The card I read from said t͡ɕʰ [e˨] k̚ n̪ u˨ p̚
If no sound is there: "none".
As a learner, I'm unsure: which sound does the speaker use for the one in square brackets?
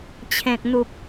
ẽ˨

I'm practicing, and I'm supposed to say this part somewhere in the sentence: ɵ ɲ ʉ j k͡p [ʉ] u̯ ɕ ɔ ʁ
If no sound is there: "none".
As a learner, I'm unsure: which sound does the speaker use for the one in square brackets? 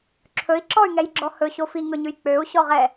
ø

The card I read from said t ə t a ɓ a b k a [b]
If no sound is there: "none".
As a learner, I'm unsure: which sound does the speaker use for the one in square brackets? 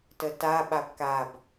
b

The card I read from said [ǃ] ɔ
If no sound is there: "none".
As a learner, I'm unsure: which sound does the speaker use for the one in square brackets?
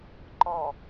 ǃ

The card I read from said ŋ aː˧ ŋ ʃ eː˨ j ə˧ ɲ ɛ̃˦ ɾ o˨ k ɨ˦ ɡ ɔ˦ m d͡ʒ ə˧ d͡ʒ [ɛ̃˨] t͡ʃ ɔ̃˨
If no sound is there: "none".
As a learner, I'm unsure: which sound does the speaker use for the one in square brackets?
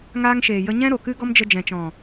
ɛ̃˨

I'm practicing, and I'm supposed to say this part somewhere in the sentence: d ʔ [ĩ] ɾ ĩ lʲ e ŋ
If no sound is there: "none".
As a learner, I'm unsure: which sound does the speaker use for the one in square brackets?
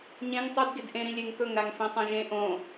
ẽ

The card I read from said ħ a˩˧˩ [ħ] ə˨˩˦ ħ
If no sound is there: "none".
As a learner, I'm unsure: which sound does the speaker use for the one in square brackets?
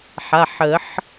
ħ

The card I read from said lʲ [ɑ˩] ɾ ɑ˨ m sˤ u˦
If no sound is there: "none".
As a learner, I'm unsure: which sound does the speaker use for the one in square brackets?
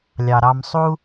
ɑ˩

